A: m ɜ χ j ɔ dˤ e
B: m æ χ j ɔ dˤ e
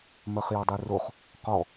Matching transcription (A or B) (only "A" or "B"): A